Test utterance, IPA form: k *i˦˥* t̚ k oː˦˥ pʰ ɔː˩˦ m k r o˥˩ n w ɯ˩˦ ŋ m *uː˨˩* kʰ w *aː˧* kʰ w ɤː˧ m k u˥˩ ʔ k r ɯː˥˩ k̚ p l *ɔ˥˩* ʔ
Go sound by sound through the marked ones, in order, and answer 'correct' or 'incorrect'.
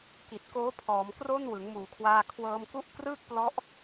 incorrect, correct, correct, incorrect

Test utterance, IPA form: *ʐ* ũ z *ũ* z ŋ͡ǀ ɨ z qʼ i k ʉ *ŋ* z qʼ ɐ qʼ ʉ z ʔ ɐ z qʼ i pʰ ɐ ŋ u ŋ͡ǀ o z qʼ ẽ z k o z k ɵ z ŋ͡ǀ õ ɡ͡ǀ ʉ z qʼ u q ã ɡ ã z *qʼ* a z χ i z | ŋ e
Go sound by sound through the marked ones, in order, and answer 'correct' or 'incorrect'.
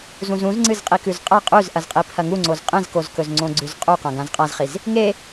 incorrect, correct, incorrect, correct

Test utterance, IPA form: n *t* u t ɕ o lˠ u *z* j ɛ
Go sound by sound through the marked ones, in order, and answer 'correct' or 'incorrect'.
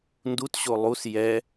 incorrect, incorrect

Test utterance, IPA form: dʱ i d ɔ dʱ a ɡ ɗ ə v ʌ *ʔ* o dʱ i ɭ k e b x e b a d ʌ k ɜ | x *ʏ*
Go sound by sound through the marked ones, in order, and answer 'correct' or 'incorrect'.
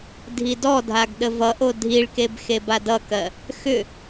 correct, correct

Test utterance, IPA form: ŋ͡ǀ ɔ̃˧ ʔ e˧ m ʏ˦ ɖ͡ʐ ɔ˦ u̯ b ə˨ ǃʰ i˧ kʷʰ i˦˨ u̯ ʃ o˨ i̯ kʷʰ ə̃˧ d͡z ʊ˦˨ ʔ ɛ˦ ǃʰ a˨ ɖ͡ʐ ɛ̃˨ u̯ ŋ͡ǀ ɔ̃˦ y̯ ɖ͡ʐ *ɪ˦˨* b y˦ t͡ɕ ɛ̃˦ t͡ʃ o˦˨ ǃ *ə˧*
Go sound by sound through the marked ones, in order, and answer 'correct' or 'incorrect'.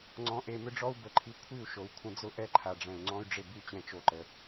correct, correct

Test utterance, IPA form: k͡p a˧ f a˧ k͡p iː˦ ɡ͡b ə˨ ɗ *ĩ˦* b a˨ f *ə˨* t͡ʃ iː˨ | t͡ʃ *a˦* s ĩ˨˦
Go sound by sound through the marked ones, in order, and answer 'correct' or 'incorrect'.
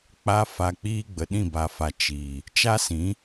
incorrect, incorrect, correct

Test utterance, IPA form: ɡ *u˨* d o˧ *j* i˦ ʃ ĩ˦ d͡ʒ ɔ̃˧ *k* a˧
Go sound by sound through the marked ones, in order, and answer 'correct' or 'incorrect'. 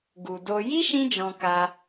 correct, correct, correct

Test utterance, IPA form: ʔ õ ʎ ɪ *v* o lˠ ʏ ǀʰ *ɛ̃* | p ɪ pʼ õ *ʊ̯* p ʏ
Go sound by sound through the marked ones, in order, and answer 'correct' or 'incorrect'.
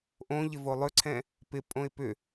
correct, correct, incorrect

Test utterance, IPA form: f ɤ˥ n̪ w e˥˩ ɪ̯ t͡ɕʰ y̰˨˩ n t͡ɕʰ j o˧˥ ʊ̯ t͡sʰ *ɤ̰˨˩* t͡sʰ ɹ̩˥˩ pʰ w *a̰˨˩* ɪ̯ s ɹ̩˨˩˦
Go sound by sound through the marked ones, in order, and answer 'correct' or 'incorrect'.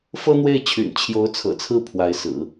correct, incorrect

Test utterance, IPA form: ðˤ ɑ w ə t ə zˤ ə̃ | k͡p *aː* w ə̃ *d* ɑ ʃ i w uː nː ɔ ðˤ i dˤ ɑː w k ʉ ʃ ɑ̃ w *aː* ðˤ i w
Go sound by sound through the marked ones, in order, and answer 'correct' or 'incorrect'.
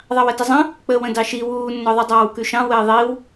incorrect, correct, incorrect

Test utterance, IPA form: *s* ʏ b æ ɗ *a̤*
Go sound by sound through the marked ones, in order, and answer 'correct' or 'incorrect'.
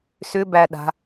correct, correct

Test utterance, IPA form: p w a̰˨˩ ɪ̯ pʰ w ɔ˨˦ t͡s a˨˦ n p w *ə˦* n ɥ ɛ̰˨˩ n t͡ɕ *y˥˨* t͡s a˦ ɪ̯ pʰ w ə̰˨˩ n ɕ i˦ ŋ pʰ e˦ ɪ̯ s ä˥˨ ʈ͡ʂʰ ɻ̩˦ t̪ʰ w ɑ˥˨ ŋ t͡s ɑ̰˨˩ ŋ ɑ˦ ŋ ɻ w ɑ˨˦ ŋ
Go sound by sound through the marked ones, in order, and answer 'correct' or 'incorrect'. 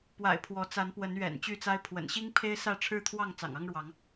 incorrect, correct

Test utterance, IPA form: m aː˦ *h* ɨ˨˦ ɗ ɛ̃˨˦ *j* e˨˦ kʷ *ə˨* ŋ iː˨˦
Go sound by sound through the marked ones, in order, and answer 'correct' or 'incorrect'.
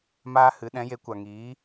correct, correct, incorrect

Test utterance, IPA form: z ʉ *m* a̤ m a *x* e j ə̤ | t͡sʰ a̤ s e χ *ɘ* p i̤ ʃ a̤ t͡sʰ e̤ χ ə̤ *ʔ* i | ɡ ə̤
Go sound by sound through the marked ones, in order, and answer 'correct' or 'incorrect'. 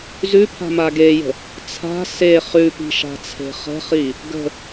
incorrect, incorrect, incorrect, incorrect

